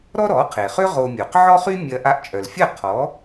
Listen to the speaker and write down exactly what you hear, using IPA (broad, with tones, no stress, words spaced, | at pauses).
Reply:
ɾɔ˥ɾɔ˩˥qʰe˩χʏ˥ ʁo˧mʲo˩q ʕɔ˥χy˥ mʲɐ˧ ʔa˧ʔt͡ʃʼœ˩lfʲɐ˥˩ qʰɔ˩˥